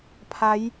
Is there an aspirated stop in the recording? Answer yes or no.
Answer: yes